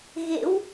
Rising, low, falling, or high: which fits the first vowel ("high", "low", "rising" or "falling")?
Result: rising